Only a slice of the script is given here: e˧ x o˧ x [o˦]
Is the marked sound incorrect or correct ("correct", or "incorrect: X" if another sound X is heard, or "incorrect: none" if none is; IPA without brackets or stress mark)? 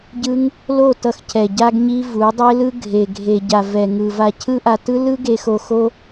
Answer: correct